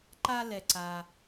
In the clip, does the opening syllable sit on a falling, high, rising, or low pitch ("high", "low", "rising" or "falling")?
high